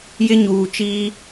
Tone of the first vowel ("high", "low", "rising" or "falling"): high